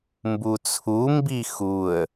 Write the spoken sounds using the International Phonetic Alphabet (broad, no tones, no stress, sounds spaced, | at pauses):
m b u t͡sʰ u m b i x u ə̯